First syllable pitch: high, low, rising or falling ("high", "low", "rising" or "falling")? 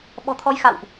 low